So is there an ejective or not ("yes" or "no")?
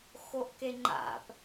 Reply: no